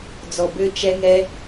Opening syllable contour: low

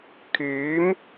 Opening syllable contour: rising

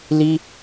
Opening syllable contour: high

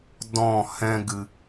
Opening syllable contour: falling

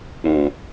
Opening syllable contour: low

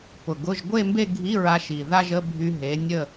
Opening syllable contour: low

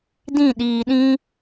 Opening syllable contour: falling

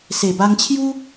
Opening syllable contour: low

